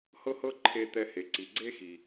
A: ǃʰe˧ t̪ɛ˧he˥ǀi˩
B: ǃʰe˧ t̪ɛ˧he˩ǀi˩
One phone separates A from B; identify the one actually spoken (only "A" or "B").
B